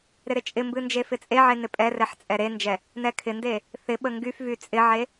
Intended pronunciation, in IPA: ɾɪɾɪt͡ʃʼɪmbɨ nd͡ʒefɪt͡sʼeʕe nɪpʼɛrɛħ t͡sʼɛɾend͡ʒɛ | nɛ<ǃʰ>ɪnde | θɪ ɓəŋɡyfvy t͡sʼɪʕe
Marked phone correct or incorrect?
incorrect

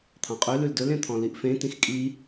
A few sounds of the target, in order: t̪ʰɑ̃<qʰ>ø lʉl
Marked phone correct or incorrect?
incorrect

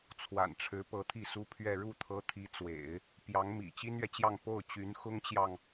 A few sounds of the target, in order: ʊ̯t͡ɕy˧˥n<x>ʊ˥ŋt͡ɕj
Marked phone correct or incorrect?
correct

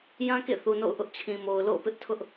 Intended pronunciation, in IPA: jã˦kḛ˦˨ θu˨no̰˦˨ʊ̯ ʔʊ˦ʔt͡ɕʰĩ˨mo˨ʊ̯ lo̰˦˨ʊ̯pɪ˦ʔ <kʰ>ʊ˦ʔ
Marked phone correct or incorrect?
incorrect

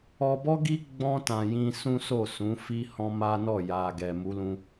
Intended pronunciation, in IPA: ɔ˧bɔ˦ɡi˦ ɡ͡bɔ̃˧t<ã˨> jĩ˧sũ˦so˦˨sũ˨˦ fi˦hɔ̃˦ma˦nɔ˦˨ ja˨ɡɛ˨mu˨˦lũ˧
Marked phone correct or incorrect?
correct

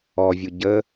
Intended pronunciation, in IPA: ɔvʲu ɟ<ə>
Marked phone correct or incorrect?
correct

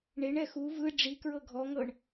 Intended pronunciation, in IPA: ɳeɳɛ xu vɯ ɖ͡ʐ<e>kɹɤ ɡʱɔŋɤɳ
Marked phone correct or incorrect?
incorrect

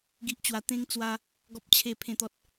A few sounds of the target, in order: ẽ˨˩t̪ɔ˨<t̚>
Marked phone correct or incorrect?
correct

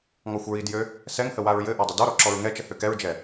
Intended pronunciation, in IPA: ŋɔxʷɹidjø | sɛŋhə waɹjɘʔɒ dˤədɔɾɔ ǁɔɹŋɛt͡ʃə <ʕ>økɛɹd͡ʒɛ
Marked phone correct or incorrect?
incorrect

